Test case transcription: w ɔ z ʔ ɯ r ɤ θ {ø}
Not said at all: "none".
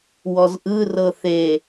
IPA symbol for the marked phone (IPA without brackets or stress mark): e